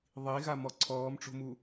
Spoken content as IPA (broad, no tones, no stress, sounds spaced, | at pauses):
ðˤ i ɣ a m ɔ ǀʰ ɔː m ʈ͡ʂ o̤ m u